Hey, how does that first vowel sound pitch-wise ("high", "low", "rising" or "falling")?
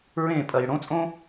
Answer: falling